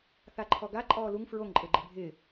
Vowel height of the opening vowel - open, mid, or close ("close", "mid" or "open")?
open